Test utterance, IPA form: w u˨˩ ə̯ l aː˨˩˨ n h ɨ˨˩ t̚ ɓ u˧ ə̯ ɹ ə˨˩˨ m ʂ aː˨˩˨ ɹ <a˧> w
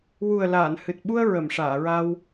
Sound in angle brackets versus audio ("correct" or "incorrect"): correct